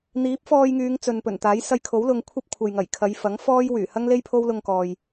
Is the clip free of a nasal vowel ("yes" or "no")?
yes